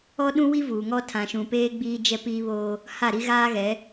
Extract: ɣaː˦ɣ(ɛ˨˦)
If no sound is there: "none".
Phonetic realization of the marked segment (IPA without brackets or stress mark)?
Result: ɛ˨˦